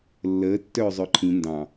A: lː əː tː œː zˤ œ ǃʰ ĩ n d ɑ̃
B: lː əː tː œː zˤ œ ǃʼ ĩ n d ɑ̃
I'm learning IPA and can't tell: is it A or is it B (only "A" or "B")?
A